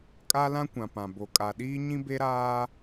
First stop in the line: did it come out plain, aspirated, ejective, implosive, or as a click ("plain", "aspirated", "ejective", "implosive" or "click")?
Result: ejective